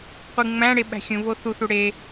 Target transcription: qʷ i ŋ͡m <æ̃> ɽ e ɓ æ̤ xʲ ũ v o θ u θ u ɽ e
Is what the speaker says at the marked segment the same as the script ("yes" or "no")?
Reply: yes